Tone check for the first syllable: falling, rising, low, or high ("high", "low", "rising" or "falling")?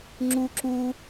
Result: high